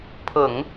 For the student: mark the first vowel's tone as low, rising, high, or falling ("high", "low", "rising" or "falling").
low